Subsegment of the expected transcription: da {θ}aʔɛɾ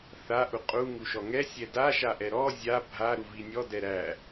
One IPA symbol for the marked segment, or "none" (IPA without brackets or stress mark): ʃ